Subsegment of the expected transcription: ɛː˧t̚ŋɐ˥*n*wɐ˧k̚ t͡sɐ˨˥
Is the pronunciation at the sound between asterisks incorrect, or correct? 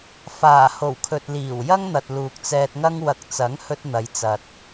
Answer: incorrect